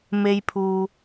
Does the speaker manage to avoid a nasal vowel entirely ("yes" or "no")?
yes